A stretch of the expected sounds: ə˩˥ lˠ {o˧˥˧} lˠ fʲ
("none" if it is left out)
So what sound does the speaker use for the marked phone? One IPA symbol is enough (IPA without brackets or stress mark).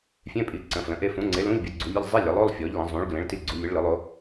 o˧˥˧